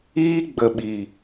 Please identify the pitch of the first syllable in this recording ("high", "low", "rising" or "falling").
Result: high